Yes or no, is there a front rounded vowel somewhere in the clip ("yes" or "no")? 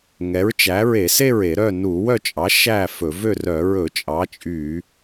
yes